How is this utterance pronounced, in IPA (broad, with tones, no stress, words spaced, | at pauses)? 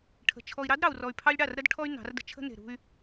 ʈʰə̤˨ t͡ʃʰɔ˨i̯ɾɑ˦d ɾɑ˨u̯rɔ˨y̯pʰɑ˦lʲ ɽɑ˦˨rɾə˦dʈʰɔ˦y̯ nɑ̤˨˦rdə̤˦ t͡ʃʰə̤˦ne̤˨ɾṳ˦y̯